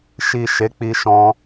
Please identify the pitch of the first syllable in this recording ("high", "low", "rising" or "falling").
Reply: low